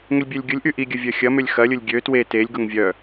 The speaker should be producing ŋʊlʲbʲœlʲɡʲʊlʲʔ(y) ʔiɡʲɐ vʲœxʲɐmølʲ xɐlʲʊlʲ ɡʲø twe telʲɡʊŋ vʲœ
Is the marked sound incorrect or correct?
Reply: correct